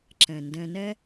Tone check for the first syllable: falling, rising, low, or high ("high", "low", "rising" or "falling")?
low